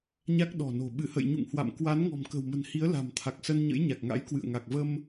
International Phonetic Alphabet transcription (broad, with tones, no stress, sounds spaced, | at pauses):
ɲ a˦˥ k̚ ɗ ɔ̤˨˩ n o̤˨˩ ɓ ɨ˧˩ h ə̰˧˨ j ɲ ṵ˧˨ ŋ h w a̰˧˨ m k w a˨˦ n ŋ ɔ̤˨˩ m k ə̤˨˩ w m ə̤˨˩ n h i˨˦ ə̯ l a̤˨˩ m t̪ʰ a˨˩ k̚ s ə˧ n ɲ ə̰˧˥ j ɲ a˨˩ k̚ ŋ a̰˧˥ j k w ɨ̰˧˨ ə̯ ŋ a˨˩ k̚ v ə˧ m